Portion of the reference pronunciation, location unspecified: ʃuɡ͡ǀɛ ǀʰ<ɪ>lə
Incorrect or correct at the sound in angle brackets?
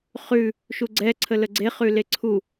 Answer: incorrect: ə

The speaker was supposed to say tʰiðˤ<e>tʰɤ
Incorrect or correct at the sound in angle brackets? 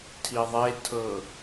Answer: correct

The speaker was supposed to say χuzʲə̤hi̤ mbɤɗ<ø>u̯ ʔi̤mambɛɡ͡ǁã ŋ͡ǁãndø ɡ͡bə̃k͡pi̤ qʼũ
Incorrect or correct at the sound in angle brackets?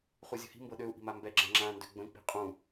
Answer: correct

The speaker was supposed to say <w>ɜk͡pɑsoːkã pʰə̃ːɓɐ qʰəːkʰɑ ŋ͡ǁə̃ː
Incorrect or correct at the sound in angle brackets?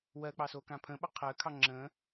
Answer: correct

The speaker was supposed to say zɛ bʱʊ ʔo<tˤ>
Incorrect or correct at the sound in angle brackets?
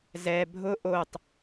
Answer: correct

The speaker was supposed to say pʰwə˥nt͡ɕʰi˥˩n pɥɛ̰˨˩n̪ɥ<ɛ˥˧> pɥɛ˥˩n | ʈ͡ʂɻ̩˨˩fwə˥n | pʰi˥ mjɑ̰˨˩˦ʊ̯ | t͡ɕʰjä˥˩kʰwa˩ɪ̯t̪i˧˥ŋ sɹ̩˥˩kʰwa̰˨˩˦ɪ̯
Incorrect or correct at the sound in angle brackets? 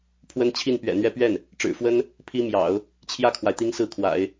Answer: correct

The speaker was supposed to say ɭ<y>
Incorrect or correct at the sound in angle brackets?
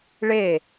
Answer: incorrect: e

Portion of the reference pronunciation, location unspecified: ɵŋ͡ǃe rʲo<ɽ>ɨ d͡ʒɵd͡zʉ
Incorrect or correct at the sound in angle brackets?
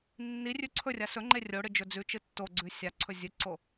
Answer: correct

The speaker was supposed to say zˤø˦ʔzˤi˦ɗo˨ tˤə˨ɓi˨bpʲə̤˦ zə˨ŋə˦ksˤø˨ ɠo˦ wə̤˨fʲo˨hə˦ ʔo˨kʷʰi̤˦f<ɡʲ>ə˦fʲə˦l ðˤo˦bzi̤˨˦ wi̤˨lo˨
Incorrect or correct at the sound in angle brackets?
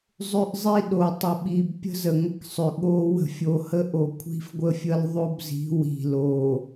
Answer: incorrect: ɡʷ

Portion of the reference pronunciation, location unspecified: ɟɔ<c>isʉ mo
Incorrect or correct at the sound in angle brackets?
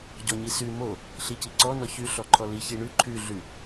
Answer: incorrect: ɲ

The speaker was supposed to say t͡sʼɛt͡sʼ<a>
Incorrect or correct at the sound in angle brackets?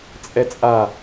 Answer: correct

